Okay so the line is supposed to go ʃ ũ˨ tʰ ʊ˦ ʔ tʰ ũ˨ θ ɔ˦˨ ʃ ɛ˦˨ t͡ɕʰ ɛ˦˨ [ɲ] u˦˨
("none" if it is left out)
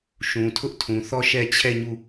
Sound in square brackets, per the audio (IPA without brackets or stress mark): ɲ